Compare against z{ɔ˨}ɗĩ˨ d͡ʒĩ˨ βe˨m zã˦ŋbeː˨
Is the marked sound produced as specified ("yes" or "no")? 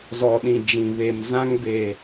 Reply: yes